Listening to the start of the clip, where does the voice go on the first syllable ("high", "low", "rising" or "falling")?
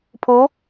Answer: rising